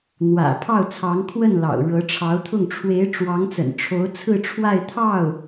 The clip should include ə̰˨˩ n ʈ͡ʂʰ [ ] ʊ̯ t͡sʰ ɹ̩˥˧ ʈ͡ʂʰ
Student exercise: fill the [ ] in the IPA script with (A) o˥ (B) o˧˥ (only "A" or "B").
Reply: B